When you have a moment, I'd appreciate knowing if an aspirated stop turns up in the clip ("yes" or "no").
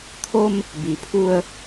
yes